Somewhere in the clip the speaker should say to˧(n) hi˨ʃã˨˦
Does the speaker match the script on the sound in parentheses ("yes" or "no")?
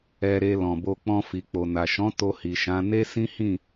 no